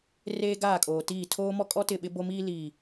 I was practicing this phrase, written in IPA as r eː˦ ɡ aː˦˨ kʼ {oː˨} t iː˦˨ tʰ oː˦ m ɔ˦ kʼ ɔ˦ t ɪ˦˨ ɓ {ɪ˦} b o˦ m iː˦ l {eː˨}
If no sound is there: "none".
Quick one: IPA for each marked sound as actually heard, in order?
oː˨, ɪ˦, iː˨

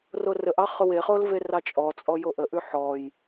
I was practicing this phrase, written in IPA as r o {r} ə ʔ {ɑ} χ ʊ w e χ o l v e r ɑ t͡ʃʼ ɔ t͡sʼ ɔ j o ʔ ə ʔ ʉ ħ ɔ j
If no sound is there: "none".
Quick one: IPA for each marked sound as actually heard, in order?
r, ɑ

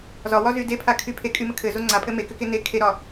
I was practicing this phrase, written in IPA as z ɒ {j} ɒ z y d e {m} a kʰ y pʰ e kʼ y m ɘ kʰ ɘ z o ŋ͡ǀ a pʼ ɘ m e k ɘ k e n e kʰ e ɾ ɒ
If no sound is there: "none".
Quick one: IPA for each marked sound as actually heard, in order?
w, pʰ

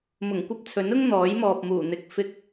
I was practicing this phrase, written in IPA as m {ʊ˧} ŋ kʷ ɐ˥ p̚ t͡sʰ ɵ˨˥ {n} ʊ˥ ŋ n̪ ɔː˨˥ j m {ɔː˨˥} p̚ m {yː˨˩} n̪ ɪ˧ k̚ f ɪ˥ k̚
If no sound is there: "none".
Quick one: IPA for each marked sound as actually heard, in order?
ʊ˨˩, n, ɔː˨, uː˨˩

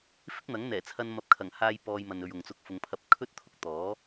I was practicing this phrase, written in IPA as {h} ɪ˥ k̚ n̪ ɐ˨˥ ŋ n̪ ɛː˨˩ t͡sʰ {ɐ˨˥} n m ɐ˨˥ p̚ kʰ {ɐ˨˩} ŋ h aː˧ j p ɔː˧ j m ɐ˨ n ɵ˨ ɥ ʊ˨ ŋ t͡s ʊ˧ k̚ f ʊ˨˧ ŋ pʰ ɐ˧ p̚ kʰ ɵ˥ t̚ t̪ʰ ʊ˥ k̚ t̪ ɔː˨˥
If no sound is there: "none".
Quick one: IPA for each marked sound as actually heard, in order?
f, ɐ˧, ɐ˨˩

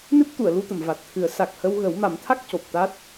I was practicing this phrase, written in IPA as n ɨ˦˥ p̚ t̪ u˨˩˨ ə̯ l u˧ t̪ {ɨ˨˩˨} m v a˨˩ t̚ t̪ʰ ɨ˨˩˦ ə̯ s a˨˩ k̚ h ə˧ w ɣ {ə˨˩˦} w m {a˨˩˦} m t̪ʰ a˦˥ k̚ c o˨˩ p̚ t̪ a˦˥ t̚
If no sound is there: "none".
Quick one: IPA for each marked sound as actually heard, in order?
ə˨˩˨, ə˨˩˦, a˨˩˦

